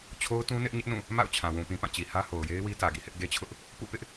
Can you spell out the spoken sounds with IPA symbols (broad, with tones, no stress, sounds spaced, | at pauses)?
t͡ɕʰ o˦ ʊ̯ t ũ˦ n ɪ˦ ʔ ɲ ɪ˦ ʔ n ũ˦˨ | m a̰˦˨ ʊ̯ t͡ɕʰ ã˨ w ũ˨ p ĩ˨ p ã˦˨ t͡ɕ i˨ h ä˦ h o˨ ʊ̯ j e˦ ɪ̯ w i˦ t ä˨ ɡ ḭ˦˨ h ɪ˦ ʔ ɡ e˦ t͡ɕʰ ʊ˦ ʔ | p ṵ˦˨ p ɪ˦ ʔ